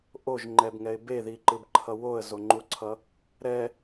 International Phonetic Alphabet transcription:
ʔ o ʒ ŋ͡ǃ ɛ b ŋ ɛ ɪ̯ b e ð i ǃ ɯ b ǃʰ ʌ w o ə̯ z o ŋ͡ǃ u ǀʰ ʌ | ɾ ɛ

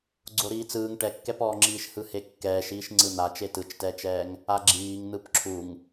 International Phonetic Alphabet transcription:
ɡ͡ǀ o ɾ iː t͡s ɯː ŋ ʈ ɛ kː ɛ p ɔː ŋ͡ǁ iː ʃ h ɯ h e kː ɛː ʃ iː ʃ ŋ͡ǀ ɯ n̪ a t͡ʃ e t ɯ t͡ʃ t ɛː t͡ʃ ɛː ŋ | a ɡ͡ǁ iː ŋ n̪ ɯ p ǁʰ u ŋ

